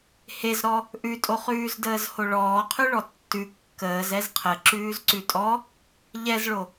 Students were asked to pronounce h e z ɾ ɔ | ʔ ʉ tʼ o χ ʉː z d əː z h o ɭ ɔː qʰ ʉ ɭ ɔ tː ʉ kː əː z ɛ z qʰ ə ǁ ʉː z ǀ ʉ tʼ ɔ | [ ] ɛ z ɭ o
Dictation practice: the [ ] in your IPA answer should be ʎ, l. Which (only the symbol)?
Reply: ʎ